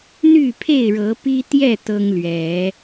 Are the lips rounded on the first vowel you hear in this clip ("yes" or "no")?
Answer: yes